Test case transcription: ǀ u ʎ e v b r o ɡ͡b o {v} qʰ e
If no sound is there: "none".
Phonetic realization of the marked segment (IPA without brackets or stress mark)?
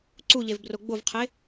v